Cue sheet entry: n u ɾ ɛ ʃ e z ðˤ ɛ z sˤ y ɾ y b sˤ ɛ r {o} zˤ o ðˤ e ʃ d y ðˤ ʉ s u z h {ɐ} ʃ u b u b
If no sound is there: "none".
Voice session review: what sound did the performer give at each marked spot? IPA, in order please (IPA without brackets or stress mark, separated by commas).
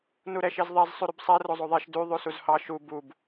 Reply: o, ɑ